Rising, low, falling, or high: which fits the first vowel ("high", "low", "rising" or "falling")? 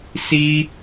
high